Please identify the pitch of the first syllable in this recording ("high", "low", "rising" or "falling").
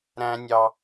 high